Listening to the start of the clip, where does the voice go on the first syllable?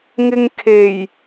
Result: low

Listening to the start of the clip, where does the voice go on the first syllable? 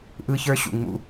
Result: high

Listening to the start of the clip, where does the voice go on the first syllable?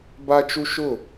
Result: high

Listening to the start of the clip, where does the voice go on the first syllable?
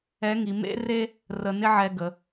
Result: rising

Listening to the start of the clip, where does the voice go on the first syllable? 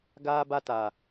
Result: high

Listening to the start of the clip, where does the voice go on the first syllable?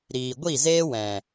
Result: low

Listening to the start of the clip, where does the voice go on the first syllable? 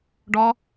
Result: high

